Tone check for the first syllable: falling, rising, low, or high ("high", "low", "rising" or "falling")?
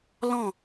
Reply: falling